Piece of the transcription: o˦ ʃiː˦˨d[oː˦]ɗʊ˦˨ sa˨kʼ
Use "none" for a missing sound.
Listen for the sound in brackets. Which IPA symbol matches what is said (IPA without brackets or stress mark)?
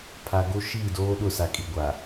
oː˦